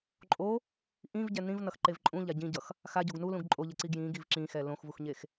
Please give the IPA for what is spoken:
ǃʼ o | ʔ ĩ v ɟ ɛ n ĩ v n ʌ x ǃ e v ǃʼ ũ ʎ a ɟ ĩ ɟ ʌ x | x a ɟ o ɡ n u l ũ ɡ ǃʼ o ʎ ɛ ǀ i ɡ j ĩ ɡ i v ǁ ĩ x ɛ l õ x v u x ɲ e x

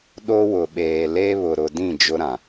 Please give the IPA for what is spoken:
ɗ o˦ w ʊ˨ ɓ eː˨ l e˦ β ʊ˨ ɾ ʊ˨ d ĩ˦˨ d͡ʒ ʊ˦ ɾ ã˨

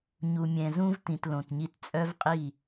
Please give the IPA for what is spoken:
ɲ u˨ mʲ ɛ̃˨ z ũ˦ v t ĩ˨ t l õ˨ t ɲ i˦ t t͡sʼ œ˦ v qʼ i˦˨

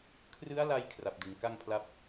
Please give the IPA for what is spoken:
kʰ r ɯ˦˥ a̯ l a˧ j kʰ r a˨˩ p̚ d ɯ˩˦ ŋ k a˥˩ ŋ pʰ l a˥˩ p̚

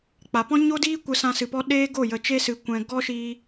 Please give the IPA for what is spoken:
k͡p a˨ p ɔ̃˦ ɲ o˦ d iː˦ kʷ ə˧ s ã˧ s ɨ˨ p ɔ˧ ɗ eː˦ ɡ o˦˨ j ə˨ t͡ʃ e˧ s ɨ˨ kʷ ɛ̃˨ ɡ ɔ˦ ʃ iː˧

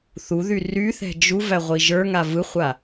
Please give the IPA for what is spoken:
θ u ð y r y θ ɛ̤ d͡ʒ u v æ ʁʷ i ʒ ə˞ ŋ a v ɯ χʷ a

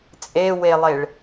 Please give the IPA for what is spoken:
t͡sʼ e w e lˠ e ɭ

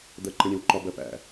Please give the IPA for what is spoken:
d̪ ɜ ǃ ɛ̃ ɾʲ ɛ̃ w ǃ ɒ b ɜ p æ̰

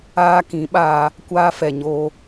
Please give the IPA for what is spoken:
aː˧ k ĩ˨˦ ɓ aː˧ | kʷ aː˧ f ɛ˨ ɲ oː˧

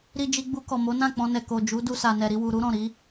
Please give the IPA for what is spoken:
ɾ i˧ d͡ʒ i˧ ɡ͡b u˧ k ɔ˨ m o˨˦ n ã˦˨ k͡p ɔ̃˧ n ɛ˨ k o˨ d͡ʒ u˨˦ d u˧ s a˨ n ɛ˨ ɾ i˧ w u˨ ɾ u˨˦ ɾ ɔ̃˦˨ ɾ i˨˦

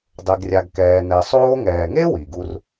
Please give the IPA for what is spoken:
dˤ e˧ ɡ rʲ a˧ ɡ k ɛː˧ n ɛ˧ sˤ oː˧ ŋ ɛː˨ ŋ e˦ w i˨ ɡ u˦ r

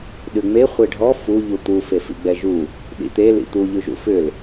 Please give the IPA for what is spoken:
ɗ ʉ ŋ͡m e χʷ e ɖʱ ɔ f u ʎ u t̪ u f e f ḭ ɡ͡b ɛ ʒ u | ɗ ḭ t̪ e l ḭ t̪ u ʎ ʉ ʒ ṵ f ʏ l

